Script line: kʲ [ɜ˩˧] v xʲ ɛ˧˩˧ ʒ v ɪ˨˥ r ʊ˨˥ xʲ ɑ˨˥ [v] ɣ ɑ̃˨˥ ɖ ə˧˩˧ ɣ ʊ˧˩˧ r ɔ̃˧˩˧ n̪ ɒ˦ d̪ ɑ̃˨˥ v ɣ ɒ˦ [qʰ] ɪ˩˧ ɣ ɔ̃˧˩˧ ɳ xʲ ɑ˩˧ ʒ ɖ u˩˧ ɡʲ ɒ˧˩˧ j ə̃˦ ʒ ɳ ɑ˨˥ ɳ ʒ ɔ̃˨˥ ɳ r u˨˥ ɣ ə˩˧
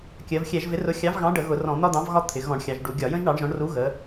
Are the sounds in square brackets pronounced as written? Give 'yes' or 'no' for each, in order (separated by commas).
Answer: yes, yes, no